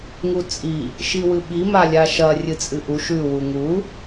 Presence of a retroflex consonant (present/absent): absent